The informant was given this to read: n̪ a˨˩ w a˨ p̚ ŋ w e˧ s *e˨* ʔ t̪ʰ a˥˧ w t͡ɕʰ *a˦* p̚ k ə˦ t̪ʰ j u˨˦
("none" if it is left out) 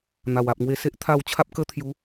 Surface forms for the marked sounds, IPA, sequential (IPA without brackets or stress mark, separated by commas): e˦, a˦